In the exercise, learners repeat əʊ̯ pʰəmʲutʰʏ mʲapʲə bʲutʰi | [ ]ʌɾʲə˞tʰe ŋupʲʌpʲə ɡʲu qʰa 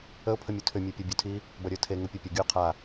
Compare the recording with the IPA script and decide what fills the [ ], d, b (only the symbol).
b